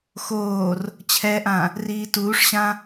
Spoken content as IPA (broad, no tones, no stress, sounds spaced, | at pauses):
x oː r | t͡ɕʰ ɛ ʔ ã | r iː t uː ʂ ɕ ã